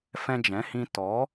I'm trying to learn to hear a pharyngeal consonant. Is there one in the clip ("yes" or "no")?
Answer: no